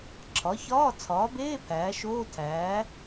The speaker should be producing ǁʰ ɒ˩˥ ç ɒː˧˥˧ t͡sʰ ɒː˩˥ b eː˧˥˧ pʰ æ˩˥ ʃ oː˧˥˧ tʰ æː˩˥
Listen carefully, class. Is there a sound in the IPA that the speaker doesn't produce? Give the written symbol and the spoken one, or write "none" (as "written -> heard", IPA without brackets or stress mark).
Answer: æ˩˥ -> æː˩˥